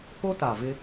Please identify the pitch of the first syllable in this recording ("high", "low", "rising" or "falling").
high